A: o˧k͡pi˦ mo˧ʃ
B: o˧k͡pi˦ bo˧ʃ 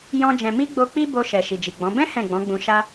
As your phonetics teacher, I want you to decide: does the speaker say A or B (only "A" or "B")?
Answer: B